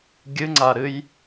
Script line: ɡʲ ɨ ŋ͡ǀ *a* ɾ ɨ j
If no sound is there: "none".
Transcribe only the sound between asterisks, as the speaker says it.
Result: a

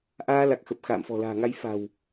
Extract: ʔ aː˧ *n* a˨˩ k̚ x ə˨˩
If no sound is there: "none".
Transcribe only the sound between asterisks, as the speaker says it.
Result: l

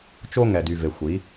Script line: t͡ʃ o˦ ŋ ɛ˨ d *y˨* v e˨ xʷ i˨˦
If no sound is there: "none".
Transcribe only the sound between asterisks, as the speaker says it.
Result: y˨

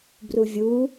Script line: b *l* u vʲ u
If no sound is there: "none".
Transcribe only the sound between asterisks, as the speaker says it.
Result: r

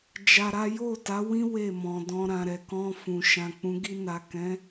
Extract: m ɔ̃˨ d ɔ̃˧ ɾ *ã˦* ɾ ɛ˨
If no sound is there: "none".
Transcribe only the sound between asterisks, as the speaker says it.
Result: ã˨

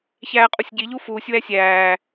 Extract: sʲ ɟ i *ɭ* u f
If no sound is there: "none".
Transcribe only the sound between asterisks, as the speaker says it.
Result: ʎ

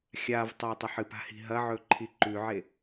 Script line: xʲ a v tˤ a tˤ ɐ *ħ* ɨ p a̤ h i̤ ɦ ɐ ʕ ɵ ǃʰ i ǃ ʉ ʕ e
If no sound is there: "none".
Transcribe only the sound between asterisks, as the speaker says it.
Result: ħ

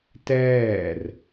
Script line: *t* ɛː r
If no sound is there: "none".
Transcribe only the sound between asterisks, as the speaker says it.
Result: t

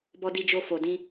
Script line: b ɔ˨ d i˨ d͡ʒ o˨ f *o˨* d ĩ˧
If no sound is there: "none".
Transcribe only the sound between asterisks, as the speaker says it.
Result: o˨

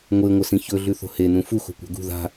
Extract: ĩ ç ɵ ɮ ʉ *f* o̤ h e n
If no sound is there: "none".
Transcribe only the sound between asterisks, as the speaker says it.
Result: θ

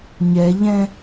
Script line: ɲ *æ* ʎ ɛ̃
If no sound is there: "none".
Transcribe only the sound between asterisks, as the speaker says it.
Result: ɛ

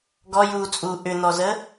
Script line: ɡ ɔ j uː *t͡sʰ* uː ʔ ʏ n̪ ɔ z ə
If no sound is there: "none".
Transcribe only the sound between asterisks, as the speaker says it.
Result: t͡sʼ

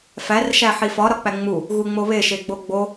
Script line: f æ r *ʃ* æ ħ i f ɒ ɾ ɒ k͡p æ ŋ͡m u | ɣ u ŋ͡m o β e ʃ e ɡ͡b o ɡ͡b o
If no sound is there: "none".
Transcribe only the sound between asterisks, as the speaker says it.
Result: ʃ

